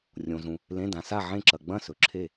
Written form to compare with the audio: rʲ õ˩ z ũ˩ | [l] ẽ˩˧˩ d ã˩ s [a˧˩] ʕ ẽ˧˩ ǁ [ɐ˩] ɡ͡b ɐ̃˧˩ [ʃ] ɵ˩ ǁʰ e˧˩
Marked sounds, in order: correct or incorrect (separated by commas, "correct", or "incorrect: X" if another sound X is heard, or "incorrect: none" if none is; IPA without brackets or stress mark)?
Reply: correct, correct, correct, incorrect: s